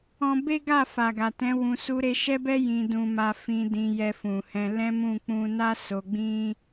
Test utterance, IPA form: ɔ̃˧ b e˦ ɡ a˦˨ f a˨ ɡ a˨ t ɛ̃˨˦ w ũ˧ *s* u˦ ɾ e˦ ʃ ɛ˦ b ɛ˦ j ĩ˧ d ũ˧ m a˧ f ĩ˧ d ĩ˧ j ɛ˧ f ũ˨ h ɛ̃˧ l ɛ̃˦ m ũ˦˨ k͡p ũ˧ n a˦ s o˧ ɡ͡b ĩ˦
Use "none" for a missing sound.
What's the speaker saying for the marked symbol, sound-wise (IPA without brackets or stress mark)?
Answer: s